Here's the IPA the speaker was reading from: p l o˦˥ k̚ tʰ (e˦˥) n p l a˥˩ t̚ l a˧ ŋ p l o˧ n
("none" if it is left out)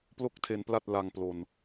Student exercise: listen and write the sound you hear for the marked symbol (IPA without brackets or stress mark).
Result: e˦˥